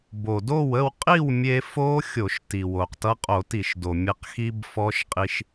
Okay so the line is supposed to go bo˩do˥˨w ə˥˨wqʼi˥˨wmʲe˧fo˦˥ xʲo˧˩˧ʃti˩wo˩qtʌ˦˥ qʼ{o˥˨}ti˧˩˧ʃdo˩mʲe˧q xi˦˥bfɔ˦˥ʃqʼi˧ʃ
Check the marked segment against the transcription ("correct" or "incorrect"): incorrect